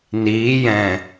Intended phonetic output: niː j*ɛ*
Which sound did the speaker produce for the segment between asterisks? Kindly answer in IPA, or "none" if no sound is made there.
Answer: ɛ̃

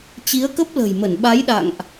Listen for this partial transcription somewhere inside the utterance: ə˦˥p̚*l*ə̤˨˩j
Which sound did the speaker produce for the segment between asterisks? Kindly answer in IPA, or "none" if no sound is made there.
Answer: l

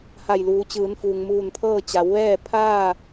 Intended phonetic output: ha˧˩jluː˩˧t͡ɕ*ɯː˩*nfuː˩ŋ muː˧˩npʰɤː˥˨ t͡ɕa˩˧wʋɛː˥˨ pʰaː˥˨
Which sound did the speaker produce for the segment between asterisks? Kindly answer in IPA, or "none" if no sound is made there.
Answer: ɯː˩˧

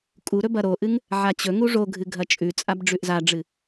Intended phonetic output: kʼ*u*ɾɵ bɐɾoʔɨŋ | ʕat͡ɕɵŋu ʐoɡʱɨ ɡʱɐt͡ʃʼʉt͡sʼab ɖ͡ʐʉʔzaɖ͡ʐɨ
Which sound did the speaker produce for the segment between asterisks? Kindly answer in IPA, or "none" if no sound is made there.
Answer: u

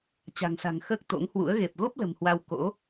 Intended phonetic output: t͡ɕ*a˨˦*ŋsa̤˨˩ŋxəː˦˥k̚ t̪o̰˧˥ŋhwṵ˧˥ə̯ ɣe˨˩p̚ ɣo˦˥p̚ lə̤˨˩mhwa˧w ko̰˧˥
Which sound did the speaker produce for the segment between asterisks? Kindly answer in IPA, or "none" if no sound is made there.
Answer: a̤˨˩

